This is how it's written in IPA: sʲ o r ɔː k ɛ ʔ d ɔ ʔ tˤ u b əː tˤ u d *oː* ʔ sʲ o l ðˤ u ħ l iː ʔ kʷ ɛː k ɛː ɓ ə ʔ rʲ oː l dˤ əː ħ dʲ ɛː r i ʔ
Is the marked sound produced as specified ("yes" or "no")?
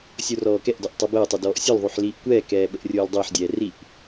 no